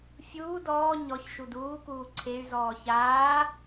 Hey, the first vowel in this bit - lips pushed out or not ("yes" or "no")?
yes